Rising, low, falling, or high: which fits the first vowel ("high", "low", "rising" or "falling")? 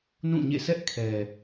falling